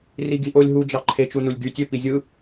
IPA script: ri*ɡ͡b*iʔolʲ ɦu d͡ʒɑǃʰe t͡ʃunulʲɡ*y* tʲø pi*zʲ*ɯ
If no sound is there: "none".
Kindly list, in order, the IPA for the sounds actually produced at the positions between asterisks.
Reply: ɡ, y, zʲ

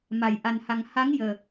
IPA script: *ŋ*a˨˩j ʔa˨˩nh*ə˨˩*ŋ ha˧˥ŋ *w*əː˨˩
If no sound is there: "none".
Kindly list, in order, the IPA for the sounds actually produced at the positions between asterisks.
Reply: m, a˨˩, j

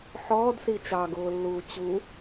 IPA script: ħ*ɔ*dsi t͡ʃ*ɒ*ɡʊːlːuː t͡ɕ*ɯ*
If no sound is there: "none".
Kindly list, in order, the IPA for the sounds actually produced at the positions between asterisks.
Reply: ɔː, ɑ, u

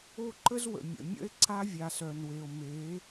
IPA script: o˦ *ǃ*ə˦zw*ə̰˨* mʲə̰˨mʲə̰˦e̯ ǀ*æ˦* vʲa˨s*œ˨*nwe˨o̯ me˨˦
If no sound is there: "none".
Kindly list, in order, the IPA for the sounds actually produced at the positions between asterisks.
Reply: ǃ, ə̰˨, a˦, œ˨

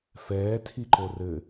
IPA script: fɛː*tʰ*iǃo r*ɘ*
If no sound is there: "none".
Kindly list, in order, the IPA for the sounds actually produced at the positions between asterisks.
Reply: tʰ, ɘ

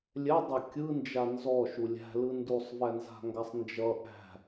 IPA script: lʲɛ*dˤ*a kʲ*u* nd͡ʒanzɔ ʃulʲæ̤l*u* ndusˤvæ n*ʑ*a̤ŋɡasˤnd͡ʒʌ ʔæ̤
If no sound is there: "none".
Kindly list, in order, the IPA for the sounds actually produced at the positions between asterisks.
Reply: dˤ, ɯ, ɯ, z

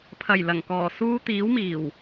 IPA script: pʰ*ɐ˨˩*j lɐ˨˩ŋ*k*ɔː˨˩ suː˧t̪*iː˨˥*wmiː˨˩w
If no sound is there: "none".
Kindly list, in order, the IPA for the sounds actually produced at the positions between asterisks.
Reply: ɐ˨˩, k, iː˨˥

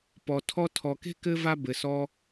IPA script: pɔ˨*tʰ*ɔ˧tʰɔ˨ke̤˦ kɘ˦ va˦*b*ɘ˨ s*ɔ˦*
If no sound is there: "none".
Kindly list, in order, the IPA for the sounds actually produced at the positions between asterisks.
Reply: tʰ, b, ɔ˦

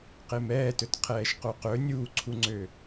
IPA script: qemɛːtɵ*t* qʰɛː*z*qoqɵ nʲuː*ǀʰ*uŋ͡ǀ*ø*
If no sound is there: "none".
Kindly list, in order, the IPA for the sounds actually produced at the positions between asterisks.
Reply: t, ʃ, ǀʰ, ø

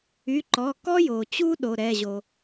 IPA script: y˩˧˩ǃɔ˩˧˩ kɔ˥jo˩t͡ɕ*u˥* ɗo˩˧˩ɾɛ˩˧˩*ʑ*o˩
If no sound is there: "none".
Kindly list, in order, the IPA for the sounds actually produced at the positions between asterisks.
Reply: u˥, ʑ

